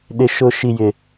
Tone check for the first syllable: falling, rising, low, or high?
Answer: high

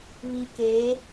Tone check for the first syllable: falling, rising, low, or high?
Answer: low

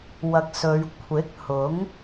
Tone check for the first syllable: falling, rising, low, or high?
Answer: low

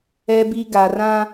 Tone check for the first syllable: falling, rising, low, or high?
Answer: low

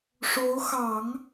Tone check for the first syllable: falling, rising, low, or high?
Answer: rising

